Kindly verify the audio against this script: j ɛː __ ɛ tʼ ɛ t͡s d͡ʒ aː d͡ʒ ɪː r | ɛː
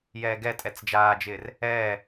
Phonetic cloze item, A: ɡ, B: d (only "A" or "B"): A